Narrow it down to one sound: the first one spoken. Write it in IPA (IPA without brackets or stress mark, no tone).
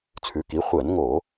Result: t͡sʰ